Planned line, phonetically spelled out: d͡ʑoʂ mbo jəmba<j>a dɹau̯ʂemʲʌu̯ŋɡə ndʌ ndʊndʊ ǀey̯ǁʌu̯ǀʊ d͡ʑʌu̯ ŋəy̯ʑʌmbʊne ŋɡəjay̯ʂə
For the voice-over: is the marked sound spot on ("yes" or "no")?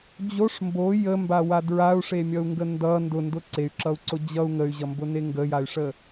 no